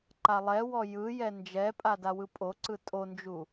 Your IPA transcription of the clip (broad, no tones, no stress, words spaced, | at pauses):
ǃalˠɛwɔ jɯjɛ nd͡ʒɛpʼa dawɯpʼoǀɯ tʼond͡ʒu